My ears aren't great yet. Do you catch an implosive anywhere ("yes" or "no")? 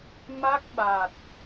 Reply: yes